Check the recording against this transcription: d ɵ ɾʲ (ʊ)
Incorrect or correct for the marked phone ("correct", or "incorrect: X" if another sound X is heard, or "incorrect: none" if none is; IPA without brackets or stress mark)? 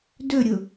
correct